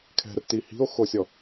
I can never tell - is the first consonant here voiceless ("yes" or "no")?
yes